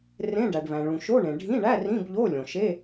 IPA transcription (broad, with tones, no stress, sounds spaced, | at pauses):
r ẽ˧˥˧ ɖ æ˩ ɖ β æ̃˩ ɭ ũ˩ ʃ o˧˥˧ ɳ ẽ˩ ɖʱ ĩ˧˥˧ ɳ æ˧˥˧ r ĩ˧˥˧ b ʎ o˧˥˧ lʲ õ˩ ʃ e˧˥˧